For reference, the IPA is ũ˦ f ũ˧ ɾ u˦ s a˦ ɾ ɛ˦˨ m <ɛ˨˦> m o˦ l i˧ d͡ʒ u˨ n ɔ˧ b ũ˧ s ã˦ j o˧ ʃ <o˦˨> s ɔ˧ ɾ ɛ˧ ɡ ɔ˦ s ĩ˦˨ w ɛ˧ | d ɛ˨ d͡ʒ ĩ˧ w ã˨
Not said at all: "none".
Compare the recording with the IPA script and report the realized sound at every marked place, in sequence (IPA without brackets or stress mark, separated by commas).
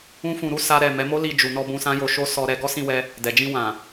ɛ˨˦, o˦